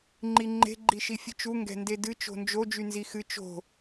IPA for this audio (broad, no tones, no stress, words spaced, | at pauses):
ŋ͡ǃiŋ͡ǃe̤ ɡ͡ǃiʃifʲɨt͡ʃu ŋɡɛ̤ndedɨ t͡ʃo̤nd͡ʒo d͡ʒynzixɨ t͡ʃo̤